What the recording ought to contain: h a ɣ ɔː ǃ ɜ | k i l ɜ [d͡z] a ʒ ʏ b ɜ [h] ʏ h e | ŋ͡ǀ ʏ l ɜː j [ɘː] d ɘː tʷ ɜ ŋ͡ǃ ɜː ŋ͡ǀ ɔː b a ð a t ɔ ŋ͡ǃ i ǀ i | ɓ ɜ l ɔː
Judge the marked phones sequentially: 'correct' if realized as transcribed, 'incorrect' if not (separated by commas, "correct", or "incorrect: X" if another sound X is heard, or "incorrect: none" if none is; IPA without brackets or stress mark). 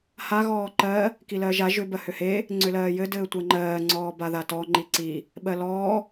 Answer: incorrect: ʒ, correct, incorrect: ɘ